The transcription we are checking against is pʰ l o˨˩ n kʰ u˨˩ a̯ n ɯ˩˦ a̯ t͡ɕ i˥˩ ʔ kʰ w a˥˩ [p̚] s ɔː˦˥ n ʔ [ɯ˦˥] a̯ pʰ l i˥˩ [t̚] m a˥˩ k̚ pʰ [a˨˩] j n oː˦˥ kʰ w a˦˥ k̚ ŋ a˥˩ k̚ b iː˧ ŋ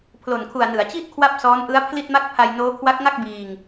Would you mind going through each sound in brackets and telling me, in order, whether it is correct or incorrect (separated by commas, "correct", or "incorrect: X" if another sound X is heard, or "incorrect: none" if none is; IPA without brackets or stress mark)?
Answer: correct, correct, correct, incorrect: a˧